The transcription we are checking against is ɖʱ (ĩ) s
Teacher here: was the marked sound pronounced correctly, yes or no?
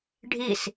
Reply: no